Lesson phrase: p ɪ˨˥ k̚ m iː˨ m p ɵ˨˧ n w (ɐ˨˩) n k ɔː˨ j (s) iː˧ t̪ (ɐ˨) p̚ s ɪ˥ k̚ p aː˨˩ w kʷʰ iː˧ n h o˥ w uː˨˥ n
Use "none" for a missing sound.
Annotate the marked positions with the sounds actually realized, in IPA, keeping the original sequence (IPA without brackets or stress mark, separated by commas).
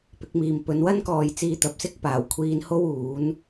ɐ˥, t͡s, ɐ˨